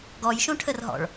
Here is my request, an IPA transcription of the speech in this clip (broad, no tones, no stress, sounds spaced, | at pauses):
ɡ ɔ j ʃ õ ʈʰ ə r ɦ ɔ̰ ɭ